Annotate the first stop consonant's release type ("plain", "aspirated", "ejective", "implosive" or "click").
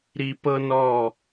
plain